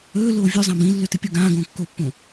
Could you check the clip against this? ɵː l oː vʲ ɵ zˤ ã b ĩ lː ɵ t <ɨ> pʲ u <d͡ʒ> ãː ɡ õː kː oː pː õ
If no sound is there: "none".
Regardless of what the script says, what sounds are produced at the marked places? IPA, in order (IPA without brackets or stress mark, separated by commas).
ɨ, ɡ